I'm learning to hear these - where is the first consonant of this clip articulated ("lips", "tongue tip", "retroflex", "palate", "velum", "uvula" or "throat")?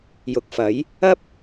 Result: palate